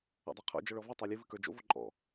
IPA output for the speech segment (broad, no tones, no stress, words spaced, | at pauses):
ɔ̰dˤɜqʰo̰ d͡ʒɔɭɔvɨ tˤə˞lʲɨ vɨkə˞d͡ʒo̰ voǃʼɔ̰